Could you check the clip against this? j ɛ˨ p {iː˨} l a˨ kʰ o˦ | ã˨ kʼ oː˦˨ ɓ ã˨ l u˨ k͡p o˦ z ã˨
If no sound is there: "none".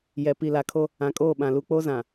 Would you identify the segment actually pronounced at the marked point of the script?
i˨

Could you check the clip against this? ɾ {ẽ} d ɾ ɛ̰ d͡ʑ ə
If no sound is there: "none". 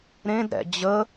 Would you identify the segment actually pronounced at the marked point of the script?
ẽ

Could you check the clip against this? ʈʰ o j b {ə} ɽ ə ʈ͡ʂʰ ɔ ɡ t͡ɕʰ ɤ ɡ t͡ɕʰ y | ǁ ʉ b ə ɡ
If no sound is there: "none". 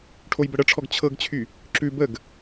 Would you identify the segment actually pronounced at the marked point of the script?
ə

